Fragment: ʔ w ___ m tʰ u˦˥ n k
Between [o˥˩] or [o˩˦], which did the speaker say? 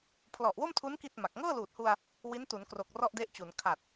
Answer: o˥˩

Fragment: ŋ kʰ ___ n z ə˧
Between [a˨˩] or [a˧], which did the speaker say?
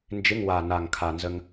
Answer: a˨˩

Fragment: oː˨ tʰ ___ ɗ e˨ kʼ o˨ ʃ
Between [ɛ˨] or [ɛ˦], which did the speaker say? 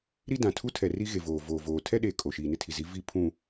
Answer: ɛ˦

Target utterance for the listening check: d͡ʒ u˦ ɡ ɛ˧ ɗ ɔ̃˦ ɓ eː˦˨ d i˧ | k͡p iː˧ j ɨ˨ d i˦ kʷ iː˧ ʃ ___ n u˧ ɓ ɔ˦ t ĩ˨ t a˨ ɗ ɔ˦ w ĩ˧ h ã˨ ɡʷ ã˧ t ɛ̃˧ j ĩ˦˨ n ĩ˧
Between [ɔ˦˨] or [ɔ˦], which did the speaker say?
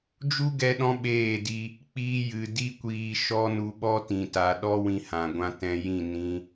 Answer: ɔ˦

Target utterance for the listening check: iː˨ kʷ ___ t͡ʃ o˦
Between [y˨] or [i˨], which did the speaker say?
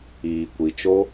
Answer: i˨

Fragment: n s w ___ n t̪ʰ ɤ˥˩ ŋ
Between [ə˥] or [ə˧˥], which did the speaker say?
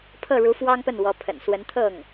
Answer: ə˧˥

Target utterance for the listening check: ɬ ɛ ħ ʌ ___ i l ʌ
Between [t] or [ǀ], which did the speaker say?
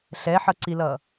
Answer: ǀ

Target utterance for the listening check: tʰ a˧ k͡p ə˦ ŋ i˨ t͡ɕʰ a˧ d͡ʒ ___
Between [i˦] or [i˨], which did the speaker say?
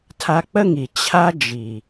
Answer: i˨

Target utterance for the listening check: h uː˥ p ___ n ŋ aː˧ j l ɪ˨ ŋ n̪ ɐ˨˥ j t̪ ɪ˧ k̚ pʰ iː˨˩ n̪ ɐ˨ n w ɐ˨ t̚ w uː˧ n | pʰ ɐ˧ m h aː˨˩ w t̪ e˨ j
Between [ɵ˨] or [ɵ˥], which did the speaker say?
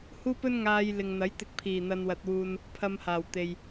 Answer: ɵ˥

